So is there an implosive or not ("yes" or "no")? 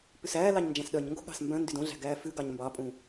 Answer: yes